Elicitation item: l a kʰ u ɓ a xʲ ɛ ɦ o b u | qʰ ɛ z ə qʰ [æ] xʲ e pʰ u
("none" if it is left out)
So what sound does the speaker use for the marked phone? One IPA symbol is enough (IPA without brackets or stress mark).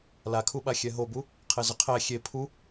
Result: æ